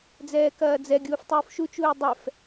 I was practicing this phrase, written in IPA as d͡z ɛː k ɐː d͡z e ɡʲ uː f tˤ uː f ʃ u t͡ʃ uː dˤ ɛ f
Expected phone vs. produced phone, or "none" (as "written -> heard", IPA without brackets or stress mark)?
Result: e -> ɛ